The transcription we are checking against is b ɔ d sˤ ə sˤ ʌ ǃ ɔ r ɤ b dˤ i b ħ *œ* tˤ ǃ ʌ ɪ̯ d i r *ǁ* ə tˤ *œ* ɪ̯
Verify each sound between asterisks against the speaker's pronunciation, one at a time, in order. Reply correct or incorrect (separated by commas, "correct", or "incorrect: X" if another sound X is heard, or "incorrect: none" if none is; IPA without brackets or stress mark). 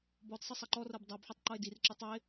correct, correct, incorrect: ə